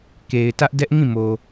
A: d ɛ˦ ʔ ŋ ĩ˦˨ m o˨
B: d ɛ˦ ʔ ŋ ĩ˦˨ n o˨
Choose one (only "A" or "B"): A